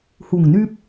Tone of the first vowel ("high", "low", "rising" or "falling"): low